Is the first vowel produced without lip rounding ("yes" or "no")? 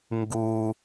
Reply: no